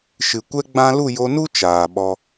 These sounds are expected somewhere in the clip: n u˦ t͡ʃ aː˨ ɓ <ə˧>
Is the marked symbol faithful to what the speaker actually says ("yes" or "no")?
no